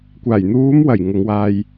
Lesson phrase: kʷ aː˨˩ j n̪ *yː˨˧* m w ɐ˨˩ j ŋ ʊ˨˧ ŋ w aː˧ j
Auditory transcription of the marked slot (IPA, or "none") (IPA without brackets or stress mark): uː˨˧